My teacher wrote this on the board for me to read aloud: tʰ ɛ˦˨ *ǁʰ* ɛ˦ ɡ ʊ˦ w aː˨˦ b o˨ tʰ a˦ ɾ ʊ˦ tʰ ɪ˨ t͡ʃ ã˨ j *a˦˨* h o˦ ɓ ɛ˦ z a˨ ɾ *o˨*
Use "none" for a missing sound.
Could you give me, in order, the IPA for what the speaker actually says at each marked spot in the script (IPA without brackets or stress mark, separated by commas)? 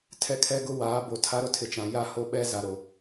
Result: kʰ, a˦˨, o˨